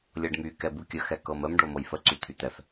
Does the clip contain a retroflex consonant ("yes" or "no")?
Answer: yes